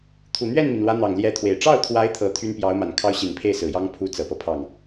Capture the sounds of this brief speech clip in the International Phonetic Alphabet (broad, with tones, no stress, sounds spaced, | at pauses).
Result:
t̪ʰ u˨˩ n̪ ɥ ɛ˥˩ n m i˩ n l w ä˧˥ n̪ ɑ˨˩ ŋ l j ɛ˧˥ t̪ʰ w e˨˩ ɪ̯ ʈ͡ʂ ɑ˥˩ ʊ̯ t̪ʰ w a˧˥ ɪ̯ t̪ʰ ɤ˧˥ t̪ʰ y˥ n p j ɑ˧˥ ʊ̯ m a˨˩ n kʰ ɑ˥ ʊ̯ ɕ i˨˩ n pʰ e˥˩ ɪ̯ s ɹ̩˨˩ j ɑ˥ ŋ pʰ u˧˥ t͡s ɤ˨˩ p ɤ˦ pʰ ɑ˥˩ ŋ